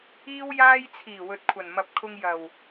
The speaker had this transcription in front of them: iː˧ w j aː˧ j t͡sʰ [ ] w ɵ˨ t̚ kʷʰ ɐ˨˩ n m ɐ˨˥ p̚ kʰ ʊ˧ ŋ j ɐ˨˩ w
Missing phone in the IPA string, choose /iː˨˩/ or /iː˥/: iː˨˩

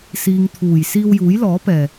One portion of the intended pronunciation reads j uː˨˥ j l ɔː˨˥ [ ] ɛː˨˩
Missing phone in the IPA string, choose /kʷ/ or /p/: p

